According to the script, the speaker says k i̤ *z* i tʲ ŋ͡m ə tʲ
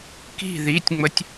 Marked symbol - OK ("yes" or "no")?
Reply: no